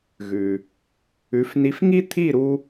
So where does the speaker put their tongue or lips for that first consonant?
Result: velum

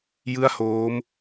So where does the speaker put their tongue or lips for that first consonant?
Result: palate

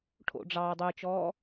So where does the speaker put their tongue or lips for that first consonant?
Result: retroflex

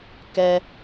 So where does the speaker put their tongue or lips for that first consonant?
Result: velum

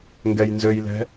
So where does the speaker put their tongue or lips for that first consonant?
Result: velum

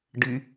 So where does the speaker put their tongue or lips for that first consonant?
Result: retroflex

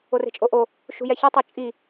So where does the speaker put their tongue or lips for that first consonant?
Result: tongue tip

